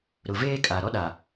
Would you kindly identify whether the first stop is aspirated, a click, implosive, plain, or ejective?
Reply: ejective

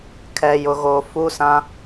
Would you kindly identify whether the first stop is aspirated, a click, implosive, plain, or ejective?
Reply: aspirated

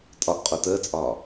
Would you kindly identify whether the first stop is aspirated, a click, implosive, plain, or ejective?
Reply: ejective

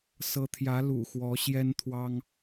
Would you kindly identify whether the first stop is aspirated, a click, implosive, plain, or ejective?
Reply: aspirated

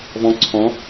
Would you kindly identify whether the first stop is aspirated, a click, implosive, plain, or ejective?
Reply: click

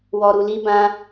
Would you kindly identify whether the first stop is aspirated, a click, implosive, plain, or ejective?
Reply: plain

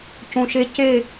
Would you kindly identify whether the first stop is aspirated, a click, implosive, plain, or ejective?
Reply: plain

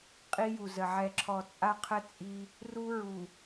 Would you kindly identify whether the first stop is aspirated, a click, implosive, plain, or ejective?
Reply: ejective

